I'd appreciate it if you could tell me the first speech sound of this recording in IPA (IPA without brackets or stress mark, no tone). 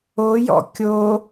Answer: o